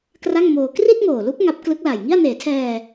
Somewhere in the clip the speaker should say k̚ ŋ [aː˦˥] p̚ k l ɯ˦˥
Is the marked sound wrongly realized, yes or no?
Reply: yes